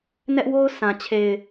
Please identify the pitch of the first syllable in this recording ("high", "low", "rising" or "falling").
high